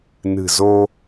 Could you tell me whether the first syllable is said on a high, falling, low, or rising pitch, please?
low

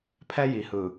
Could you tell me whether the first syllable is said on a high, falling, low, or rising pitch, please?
high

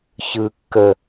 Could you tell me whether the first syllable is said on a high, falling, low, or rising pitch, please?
low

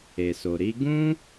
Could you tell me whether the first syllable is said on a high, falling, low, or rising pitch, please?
low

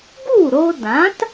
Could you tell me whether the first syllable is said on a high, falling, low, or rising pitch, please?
falling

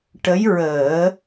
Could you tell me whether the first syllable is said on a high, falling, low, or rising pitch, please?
rising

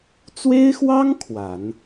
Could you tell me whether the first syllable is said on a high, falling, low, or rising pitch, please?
high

